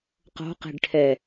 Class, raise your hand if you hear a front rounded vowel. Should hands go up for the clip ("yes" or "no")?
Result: no